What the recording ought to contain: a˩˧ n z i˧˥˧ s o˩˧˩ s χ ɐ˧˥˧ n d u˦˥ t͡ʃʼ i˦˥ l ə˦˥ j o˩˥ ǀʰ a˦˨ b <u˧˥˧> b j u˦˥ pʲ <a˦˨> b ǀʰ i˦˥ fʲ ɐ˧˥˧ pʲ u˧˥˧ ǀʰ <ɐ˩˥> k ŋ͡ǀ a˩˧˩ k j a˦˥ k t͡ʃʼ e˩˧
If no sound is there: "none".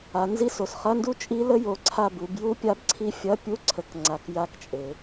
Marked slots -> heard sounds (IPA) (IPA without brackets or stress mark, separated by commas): u˩˧, a˦˥, ə˩˥